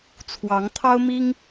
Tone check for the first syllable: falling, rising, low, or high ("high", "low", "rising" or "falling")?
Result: rising